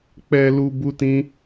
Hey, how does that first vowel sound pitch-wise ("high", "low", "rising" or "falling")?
low